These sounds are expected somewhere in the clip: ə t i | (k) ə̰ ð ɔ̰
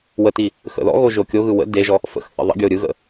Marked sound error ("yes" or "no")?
yes